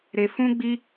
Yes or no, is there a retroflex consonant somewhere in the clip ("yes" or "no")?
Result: no